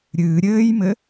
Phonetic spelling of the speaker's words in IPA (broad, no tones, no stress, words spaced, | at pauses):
ɾʲɨː ɾʲɘːjmɘ